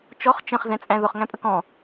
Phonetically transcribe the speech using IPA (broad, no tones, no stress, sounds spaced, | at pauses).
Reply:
t͡ʃ ɔ χ t͡ʃ ə̃ χ z ɛ̃ t͡sʼ æ̃ ð ʊ χ ŋ æ̃ pʼ ə k ɔ̃